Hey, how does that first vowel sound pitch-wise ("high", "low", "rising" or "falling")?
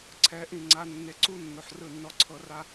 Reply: rising